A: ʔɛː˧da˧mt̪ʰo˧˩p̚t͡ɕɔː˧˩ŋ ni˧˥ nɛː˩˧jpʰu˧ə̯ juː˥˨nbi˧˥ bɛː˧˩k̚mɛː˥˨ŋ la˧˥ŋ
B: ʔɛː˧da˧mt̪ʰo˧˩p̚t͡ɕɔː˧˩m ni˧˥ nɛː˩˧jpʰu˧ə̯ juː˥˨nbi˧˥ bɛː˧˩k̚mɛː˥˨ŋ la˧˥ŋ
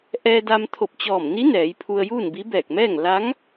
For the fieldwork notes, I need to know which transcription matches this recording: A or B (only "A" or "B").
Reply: B